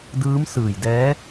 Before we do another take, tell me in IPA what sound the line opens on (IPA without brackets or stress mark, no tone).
d